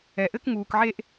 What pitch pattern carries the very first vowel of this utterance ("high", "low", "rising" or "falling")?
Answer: low